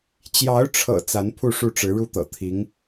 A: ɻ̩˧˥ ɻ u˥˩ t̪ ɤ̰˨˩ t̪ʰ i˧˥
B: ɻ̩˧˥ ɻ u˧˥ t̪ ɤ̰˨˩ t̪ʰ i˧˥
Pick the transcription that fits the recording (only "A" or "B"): A